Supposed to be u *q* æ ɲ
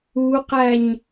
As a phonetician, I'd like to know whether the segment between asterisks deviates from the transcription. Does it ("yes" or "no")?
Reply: no